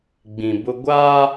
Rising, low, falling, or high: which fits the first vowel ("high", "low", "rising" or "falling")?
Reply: low